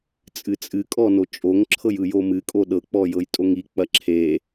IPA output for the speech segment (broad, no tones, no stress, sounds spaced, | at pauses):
t͡sʼ ɨ t͡sʼ ɨ kʼ ɔ n o t͡ʃʼ o ŋ ǁʰ ɤ j ɯ j o m ɨ kʼ o ɗ ɤ k͡p ɔ j ɤ j tʼ o ŋ i k͡p ɐ ǁʰ e